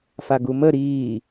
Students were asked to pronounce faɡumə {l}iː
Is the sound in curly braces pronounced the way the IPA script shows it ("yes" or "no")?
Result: no